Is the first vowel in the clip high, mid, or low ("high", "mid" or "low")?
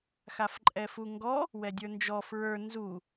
low